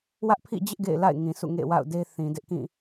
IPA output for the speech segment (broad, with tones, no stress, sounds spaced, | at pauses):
w ä˦ ʔ pʰ ḭ˦˨ d͡ʑ ɪ˦ ʔ ɡ ḛ˦˨ ɪ̯ l a̰˦˨ ɪ̯ ŋ ĩ˨ s ṵ˦˨ ŋ ḛ˦˨ w a̰˦˨ ʊ̯ d e˦ θ ĩ˨ d ɪ˦ ʔ k ĩ˦˨